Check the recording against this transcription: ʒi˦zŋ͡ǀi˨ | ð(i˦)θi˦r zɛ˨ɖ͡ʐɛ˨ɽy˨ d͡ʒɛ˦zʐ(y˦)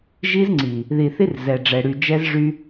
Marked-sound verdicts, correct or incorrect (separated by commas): incorrect, correct